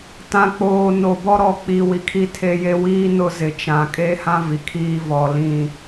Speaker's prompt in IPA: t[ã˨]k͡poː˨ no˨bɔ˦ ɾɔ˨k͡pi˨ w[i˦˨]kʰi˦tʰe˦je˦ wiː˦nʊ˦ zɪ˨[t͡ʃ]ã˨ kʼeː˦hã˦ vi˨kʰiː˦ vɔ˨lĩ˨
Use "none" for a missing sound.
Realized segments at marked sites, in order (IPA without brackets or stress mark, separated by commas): ã˨, i˨, t͡ʃ